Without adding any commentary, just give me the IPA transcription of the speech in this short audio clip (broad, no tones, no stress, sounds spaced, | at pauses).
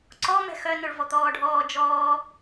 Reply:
ǀ ɔ m ɛ̤ x œ n o ɭ v ɔ t̪ ɔː ɖʱ ɔː d͡ʒ ɔː